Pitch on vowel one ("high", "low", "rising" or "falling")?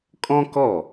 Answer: high